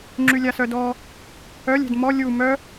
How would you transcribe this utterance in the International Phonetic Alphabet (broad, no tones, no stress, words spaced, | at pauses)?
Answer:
ŋ͡ǁylʲasœdɔ | œlʲ ɛ̤dmɔ lʲu mœ